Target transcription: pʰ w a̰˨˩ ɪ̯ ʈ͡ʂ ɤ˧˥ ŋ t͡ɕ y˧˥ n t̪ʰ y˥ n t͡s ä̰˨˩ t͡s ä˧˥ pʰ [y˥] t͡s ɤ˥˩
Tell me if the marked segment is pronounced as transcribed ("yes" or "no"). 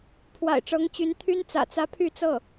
no